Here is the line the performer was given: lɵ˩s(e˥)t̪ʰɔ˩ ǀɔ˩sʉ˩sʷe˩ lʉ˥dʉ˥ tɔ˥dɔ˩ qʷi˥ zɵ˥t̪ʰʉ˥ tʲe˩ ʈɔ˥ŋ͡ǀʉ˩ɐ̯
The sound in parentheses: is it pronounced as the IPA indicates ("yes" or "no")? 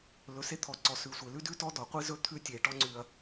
yes